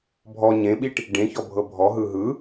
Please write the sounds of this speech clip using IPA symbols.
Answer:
bʱ ɔ ɲ ẽ ɓ i ʈ | ɖ ẽ ç ɔ bʱ ɤ bʱ ɔ ɦ ɯ ɦ ɯ

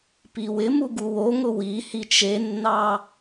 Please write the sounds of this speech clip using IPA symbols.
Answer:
p i w ɪ m u ɡ u w o ŋ ʊ w i h i t͡ʃ e nː ɑ

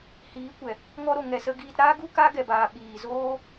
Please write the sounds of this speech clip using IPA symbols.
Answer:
h iː˨˦ kʷ ɛ˨ | ŋ ɔ˦ ɾ o˨ ŋ ɛ˨ s ə˧ ɡ iː˧ t ɾ aː˦ ɡ u˦ k a˦ ɡ ɛ˧ b aː˧ ɓ iː˨ z oː˦

